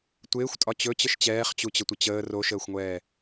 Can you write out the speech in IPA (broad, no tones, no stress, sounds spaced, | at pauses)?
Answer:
tʷ ɪː xʷ tʼ ɒ t͡ɕ ɵ t͡ɕ ə ʃ t͡ɕ ɛː χ t͡ɕ u t͡ɕ ə tʷ ə t͡ɕ əː r o ʃ əː xʷ ŋʷ ɛː